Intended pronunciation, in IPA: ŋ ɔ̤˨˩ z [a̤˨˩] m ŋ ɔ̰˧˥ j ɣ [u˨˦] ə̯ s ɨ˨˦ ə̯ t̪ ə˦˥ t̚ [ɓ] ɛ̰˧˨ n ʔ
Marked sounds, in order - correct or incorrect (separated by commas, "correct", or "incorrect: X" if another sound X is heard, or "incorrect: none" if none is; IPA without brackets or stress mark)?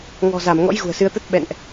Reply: incorrect: a˧˩, incorrect: ṳ˨˩, correct